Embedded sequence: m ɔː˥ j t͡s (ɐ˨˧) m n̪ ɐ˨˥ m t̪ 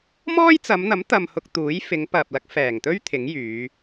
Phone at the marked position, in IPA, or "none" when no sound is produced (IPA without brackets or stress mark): ɐ˨˧